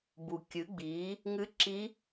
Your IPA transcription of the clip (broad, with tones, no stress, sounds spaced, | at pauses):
b u˩ kʲ ɨ˩˧ ɡ͡b iː˩˧ | ŋ ɨ˧˥ ǁ i˧˥